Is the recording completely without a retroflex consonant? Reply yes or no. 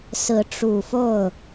no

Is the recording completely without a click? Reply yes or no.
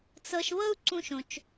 no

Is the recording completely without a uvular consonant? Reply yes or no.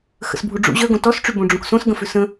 yes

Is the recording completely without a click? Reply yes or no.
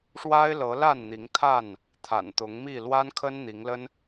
yes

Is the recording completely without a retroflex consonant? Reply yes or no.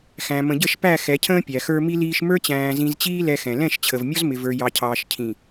yes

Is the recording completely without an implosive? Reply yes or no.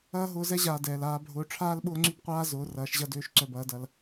no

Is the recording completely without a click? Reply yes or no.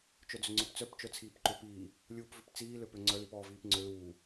no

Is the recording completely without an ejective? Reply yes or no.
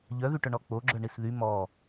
yes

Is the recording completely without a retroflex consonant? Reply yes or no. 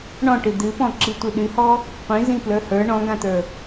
no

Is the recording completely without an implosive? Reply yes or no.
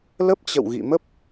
yes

